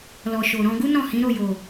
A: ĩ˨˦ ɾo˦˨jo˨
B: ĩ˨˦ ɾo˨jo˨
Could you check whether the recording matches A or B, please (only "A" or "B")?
A